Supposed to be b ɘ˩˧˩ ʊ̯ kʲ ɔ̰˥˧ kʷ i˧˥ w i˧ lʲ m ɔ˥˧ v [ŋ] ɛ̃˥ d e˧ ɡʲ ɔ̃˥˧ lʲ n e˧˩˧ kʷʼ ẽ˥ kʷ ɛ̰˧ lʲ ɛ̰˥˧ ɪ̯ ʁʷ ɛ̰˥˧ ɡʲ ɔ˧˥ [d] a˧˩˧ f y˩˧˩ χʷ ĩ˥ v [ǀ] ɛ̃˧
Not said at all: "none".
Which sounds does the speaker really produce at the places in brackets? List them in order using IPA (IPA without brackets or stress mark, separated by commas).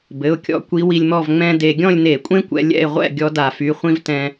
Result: ŋ͡m, d, t